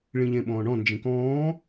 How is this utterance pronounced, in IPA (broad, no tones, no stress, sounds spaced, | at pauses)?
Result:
ɭ ĩ ʎ ẽ ɓ ɔ̃ː ɳ ɔ̃ n d͡ʒ ĩ k ɔ̃ː